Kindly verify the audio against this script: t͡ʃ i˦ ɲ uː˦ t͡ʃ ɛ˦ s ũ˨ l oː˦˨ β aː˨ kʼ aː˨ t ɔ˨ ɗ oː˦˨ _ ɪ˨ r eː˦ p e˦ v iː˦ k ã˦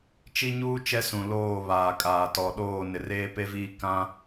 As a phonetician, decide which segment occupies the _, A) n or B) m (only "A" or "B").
A